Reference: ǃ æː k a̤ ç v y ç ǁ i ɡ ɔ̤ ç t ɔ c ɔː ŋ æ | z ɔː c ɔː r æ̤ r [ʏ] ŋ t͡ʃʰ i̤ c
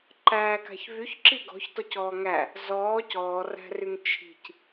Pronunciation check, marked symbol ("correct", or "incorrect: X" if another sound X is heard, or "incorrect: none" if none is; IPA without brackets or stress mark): incorrect: y